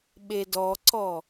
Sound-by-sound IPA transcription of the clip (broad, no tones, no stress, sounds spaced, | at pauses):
ɓ e d ɔ ǀ ɔ